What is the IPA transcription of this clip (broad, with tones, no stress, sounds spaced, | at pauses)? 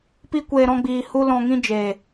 p i˦ kʷ eː˧ ɾ ɔ̃˦ ɡ͡b iː˧ h u˦ l ɔ̃˧ ŋ ĩ˦ d͡ʒ eː˨